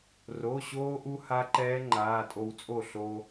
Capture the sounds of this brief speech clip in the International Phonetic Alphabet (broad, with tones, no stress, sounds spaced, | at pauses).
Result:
r o˩˧˩ ɕ oː˧ ʔ u˧ h a˦˥ ǃ ɛː˦˥ ŋ͡ǃ aː˩˧˩ tʼ o˧ w t͡sʼ o˥˩ ɬ o˧